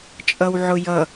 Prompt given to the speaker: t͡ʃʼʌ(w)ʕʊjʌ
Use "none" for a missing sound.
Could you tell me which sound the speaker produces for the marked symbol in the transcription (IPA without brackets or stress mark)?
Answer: w